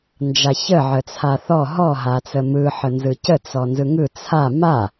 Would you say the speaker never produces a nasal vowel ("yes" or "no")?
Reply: yes